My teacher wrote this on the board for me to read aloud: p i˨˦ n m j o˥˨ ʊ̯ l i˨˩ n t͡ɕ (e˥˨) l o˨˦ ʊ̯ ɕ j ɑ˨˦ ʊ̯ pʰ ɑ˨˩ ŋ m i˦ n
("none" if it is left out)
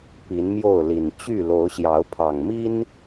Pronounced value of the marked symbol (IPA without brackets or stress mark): y˥˨